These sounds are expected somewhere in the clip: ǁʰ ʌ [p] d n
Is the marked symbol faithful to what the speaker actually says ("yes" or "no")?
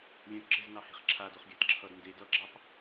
no